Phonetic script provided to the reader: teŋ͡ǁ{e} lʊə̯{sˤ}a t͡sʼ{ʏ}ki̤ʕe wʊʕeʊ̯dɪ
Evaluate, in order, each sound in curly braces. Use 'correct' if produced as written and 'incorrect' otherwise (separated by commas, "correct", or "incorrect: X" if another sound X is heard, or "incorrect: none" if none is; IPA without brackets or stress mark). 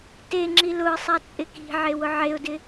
incorrect: i, correct, incorrect: ɪ